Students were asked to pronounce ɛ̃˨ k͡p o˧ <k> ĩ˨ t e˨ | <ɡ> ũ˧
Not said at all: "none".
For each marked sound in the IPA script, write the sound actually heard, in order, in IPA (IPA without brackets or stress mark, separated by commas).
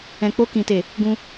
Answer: k, ɡ